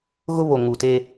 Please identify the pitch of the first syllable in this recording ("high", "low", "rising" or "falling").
high